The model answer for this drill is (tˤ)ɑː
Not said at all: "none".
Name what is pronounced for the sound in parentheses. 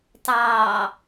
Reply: tˤ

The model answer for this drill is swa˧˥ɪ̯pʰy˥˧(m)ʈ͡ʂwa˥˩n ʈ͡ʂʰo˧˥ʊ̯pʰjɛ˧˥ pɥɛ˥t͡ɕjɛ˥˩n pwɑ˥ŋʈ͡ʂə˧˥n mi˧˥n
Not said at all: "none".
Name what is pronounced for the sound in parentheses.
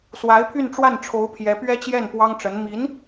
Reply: n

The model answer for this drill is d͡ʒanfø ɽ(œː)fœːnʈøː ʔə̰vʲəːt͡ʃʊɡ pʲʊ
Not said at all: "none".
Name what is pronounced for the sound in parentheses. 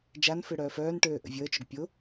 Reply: œː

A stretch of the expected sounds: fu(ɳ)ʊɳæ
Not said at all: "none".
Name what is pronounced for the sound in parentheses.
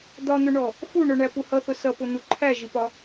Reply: ɳ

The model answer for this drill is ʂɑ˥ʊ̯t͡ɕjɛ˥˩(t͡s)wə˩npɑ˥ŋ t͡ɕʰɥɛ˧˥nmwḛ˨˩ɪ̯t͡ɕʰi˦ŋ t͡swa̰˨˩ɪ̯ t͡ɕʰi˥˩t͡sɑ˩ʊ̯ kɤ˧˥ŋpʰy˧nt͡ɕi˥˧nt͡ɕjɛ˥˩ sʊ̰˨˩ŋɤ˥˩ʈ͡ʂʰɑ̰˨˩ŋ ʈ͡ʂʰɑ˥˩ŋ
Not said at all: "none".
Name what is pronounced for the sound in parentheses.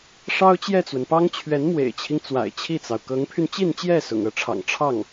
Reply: t͡s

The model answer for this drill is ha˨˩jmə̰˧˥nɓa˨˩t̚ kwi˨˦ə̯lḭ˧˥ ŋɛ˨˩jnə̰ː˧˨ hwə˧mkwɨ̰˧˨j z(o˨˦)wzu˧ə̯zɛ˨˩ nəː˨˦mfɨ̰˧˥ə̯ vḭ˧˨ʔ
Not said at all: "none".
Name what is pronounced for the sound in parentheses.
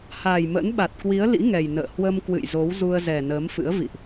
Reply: o˨˦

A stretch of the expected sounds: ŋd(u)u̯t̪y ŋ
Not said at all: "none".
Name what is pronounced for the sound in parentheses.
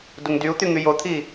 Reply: y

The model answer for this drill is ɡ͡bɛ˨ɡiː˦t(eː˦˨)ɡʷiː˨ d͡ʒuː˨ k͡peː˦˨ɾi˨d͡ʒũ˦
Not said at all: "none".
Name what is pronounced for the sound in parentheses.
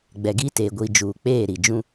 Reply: eː˨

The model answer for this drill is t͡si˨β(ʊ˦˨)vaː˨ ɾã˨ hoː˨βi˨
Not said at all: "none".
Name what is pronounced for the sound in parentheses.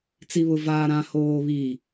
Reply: ʊ˨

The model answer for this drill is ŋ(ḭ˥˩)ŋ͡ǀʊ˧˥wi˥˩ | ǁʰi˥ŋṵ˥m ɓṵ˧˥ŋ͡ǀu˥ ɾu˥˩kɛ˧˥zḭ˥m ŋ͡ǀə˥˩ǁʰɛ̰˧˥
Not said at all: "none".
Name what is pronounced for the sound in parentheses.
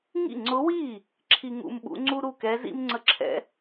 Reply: ḭ˥˩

